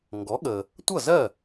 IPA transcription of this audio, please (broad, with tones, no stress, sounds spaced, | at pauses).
ŋ ɡ ɔ˩˥ ɠ ə˩ | tʷ ʌ˥˩ z ɜ˥˩